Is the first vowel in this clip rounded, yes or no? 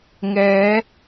no